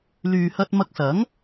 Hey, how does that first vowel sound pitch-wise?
low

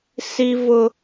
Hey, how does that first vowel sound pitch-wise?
high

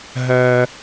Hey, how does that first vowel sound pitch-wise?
low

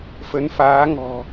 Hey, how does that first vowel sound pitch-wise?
rising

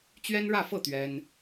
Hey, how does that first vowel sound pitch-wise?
high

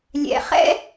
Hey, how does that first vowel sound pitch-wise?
low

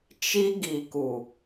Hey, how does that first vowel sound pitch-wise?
high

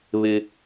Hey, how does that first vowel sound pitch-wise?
high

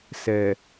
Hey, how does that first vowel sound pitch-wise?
low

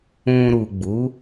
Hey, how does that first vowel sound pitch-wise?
low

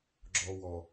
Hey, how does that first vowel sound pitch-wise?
low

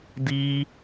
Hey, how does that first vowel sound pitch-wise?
high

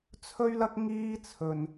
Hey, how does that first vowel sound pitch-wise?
high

